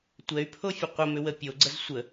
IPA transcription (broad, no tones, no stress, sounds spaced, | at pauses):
tʷ ɛ y̯ pʰ o fʲ ə qʷ ə m ʏ w ə pʲ o ɡ͡ǀ ə z sʷ ə